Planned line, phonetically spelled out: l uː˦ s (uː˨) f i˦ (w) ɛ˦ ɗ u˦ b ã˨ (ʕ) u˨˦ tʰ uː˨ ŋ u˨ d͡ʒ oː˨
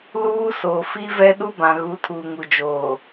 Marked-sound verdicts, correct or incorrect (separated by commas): incorrect, incorrect, incorrect